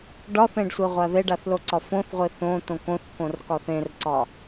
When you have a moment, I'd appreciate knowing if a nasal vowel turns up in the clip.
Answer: yes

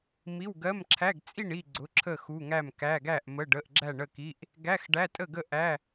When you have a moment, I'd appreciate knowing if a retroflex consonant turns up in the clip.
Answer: yes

